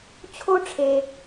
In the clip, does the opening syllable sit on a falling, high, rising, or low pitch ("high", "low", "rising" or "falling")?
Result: high